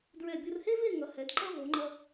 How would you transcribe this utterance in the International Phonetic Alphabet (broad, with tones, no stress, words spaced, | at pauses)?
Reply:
dɹɛ˧˩bʲo˧rhe˥ve˥˧ ŋʌ˩˧hɛ˩˧dǃʌ˥ vo˩˧ŋ͡ǃʌ˧